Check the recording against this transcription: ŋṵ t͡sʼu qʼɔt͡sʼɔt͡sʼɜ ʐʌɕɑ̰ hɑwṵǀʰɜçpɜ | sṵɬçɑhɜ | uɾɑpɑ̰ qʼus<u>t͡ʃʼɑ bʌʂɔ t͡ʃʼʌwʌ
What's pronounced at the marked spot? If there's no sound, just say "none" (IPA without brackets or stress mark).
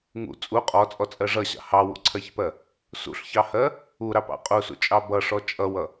ṵ